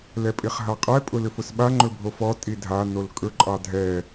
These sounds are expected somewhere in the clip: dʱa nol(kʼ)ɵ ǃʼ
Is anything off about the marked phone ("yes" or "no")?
no